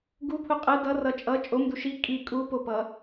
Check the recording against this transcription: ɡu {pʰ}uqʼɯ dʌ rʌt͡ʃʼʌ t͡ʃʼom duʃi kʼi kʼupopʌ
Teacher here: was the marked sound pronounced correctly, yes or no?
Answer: yes